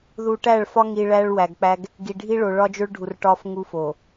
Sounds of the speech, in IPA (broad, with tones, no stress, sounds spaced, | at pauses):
ð u˨ ʈ æ˦˨ ɭ f ɒ˦ ŋ i˨ ɭ æ˦ ɭ w æ˨ ɡ k͡p æ˦ ɡ | ɡ i˨ ɖʱ i˦ ɭ o˨ ɭ ɒ˦ d͡ʒ o˦ ɭ ɖʱ u˨ r ʈ ɒ˦ f ŋ u˦ f o˨